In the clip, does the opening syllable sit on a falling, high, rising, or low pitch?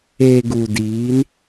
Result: low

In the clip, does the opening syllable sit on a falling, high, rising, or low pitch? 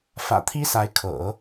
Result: low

